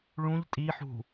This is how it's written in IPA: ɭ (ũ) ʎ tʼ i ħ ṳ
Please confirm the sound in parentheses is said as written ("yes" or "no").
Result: yes